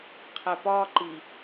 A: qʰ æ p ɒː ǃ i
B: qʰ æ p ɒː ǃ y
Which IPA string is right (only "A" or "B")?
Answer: A